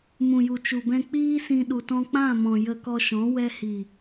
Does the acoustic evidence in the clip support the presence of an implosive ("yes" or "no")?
yes